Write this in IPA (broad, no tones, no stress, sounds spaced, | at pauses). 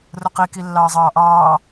r ʊ q i k i lː ɑː zˤ ɑː ʔ ɑː